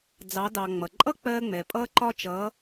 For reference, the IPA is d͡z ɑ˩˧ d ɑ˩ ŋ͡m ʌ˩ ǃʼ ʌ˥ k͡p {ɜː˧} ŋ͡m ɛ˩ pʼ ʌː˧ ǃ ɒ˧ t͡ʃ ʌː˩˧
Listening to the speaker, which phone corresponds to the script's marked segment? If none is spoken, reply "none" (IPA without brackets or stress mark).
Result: ɜː˧